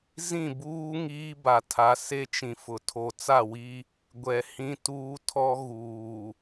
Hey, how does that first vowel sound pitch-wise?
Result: falling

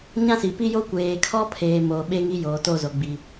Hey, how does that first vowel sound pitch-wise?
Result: high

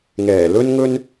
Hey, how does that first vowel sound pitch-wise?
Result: low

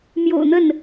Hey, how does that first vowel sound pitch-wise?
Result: low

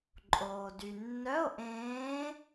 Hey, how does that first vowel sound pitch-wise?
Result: low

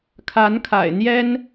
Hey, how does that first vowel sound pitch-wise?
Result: rising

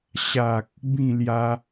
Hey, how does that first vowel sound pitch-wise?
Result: low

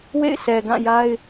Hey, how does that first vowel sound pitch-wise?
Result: falling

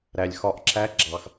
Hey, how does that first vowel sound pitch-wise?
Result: low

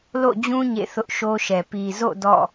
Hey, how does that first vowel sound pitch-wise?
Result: falling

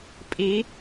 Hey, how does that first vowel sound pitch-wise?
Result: rising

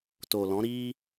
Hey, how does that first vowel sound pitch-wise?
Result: low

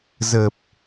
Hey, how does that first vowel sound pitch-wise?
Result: low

